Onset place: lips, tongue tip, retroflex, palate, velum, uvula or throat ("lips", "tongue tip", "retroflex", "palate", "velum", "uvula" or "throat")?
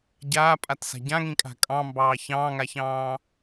palate